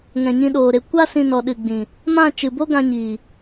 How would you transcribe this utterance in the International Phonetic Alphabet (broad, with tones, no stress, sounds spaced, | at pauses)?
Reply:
ŋ ɛ̃˨ ɲ ĩ˧ ɗ oː˨ ɾ e˧ kʷ a˦ s ĩ˧ n ɔ˨ ɗ ɨ˨ ɡ͡b ĩ˨ | m ã˦˨ t͡ʃ ɨ˨ b o˦ ɡ ã˧ ɲ iː˨